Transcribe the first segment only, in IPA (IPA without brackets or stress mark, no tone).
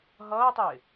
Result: ɦ